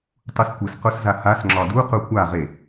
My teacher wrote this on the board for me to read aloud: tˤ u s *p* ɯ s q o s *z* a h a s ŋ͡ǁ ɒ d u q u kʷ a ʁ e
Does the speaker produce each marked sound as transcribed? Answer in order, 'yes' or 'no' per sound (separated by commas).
no, yes